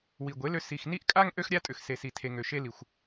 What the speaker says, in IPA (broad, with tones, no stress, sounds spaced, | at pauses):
w i˨ ɡʷ e˨˦ l ø˧ s i˨ x n i˦ ʔ kʼ a˦ ŋ ʔ ø˦ x ɾʲ a˦ tʼ ʏ˨ x s e˨ s i˨ tʰ e˨ ŋ ø˨ ʃ e˧ l i˨ xʷ